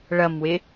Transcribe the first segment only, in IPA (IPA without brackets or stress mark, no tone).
ɭ